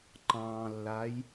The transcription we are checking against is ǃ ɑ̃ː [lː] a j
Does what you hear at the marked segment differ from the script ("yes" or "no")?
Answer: no